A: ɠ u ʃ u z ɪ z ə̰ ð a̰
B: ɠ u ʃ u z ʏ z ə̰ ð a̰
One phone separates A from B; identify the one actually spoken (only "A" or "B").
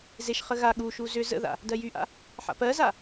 B